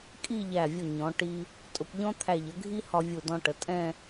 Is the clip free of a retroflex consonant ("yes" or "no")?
no